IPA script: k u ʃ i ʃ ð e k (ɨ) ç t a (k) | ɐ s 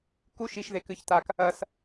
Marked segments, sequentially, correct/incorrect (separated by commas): correct, correct